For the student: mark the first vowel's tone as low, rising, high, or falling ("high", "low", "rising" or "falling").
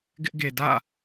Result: high